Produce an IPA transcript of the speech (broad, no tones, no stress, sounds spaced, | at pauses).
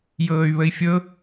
j ɤː y̯ β ə i̯ fʲ ɤ